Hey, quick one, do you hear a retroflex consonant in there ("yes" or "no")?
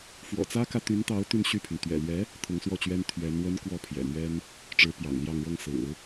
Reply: yes